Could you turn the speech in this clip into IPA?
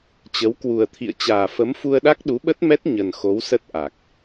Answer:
t͡ɕə˨˦wkwu˨˩ə̯t̪ʰḭ˧˨ə̯ t͡ɕaː˨˩fə˨˦mfu˧ə̯ɗa˦˥k̚ ɗu˨˦ɓə˦˥t̚mɛ˦˥t̚ ɲə˨˩nxo˨˦wsə˦˥t̚ ʔa˨˩k̚

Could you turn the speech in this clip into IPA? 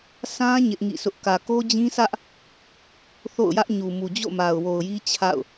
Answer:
sʰã˦ ɲɪ˦ʔŋḭ˦˨sʰʊ˦ʔ kä˨ko˦d͡ʑĩ˦sä˦ʔ | θo̰˦˨ʊ̯jä˦ʔ ɲu˨mu˨ d͡ʑo̰˦˨ma˨ʊ̯wo˨ʊ̯ji˦ t͡ɕʰa̰˦˨ʊ̯

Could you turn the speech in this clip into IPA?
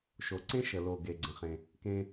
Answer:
ʃo˩ǀẽ˥ ʃə˨lo˨ ɡe˨ɡ͡ǀə̃˨χẽ˨ | kẽ˦

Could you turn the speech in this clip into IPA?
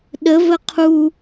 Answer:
ɗəvə qʰu

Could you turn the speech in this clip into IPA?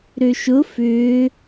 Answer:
ɾøʃʊ fʏː

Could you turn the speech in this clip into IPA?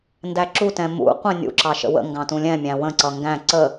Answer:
ndæǁutɛ̃ mṵ qʷɛ̃nʲṵǁɑ ʃə̰wə̰ŋɡɑ̃ tũlʲɛ̃mʲæ̃ wə̃ǀʌ ŋɡæ̃ ǀə

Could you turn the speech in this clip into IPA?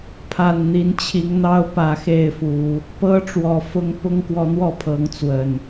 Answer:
pʰa˨˩nn̪i˨˦nt͡ɕʰi˨˦ŋn̪ɑ˦ʊ̯ pä˨˦xe˥˨ɪ̯fu˨˦ | pɤ˦ ʈ͡ʂwɔ˨˩fʊ˦ŋ pʊ˦ŋkwɔ˨˦n̪wɔ˥˨pʰɤ˨˦ŋ t͡swə˨˩n

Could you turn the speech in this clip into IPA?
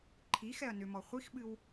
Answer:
ǃʰi xɛɐ̯nʏmɔ χʷixɓɨw

